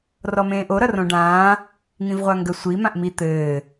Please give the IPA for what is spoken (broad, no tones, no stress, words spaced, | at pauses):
rɔmẽːʔo ɾʌrõɖãː | ŋĩvʁʷaŋɡə sʷi mãʔmi t̪ɘː